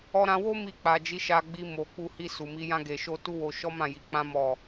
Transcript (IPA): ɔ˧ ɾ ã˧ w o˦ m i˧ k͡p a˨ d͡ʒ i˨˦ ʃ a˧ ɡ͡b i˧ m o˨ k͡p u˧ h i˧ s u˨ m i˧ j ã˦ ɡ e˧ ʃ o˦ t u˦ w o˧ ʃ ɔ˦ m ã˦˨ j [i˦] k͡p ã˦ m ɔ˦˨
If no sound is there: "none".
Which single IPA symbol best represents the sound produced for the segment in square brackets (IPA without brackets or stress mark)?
i˨˦